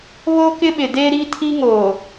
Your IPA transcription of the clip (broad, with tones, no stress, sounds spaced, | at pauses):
β o˦ k ɪ˦ ɓ ɪ˨ d e˦ ɾ i˦ tʰ i˦ ŋ oː˨